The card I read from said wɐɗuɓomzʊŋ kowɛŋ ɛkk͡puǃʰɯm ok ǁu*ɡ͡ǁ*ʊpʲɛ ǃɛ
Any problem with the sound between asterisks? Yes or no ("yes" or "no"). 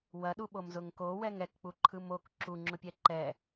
yes